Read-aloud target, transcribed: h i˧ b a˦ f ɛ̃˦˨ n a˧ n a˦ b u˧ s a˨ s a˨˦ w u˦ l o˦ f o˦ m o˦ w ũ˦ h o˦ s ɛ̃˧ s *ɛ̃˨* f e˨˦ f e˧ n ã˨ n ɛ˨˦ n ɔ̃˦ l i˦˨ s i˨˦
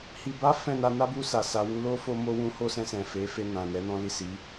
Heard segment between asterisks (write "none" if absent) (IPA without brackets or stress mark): ɛ̃˨